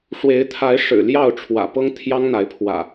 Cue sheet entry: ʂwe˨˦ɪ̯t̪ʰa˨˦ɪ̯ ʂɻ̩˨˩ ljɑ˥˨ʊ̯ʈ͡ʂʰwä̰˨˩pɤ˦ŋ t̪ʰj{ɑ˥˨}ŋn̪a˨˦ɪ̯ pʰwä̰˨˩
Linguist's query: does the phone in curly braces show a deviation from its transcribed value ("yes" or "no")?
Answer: yes